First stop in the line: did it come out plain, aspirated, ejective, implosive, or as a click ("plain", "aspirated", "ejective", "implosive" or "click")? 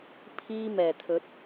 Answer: aspirated